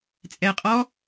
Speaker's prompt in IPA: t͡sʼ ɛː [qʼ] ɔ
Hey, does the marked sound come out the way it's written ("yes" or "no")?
yes